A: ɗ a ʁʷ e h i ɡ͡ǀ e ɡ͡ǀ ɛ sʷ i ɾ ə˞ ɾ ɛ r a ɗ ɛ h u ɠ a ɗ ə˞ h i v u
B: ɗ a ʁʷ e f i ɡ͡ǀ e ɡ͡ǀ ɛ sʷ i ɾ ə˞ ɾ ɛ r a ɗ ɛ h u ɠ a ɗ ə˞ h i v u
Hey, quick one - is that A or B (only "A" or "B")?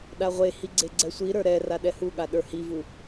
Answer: A